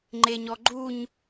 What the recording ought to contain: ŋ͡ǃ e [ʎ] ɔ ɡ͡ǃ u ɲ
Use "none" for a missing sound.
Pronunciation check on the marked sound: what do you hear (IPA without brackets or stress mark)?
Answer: ɲ